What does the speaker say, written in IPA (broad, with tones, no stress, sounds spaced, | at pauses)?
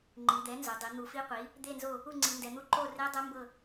ŋ͡ǃ i˩˧ d̪ ɛ˩˥ n z o˩˧ dˤ i˩˧ n̪ u˩˧ f i˧˥ qʷ i˩˥ | d̪ e˦˨ n z o˦˨ | u˦˨ ŋ͡ǀ i˩˧ n d ɛ˩˧ n̪ u˦˨ ǃ o˦˨ r e˧˥ dˤ ɛ˧˥ m b ɤ˦˨